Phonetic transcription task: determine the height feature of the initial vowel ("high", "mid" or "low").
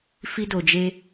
high